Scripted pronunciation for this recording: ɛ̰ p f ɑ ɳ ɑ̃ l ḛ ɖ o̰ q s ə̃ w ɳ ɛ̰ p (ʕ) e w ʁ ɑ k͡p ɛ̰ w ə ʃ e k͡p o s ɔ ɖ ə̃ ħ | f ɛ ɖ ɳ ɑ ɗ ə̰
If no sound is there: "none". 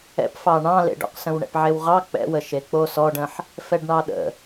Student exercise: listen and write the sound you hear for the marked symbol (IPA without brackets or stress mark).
ʕ